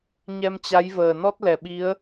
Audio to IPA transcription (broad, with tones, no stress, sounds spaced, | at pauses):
ɲ ɛ˧ m t͡ɕ a˨˦ j v əː˨˩ n ɔ˦˥ t̚ l ɛ˧˩ ɓ i˨˦ ə̯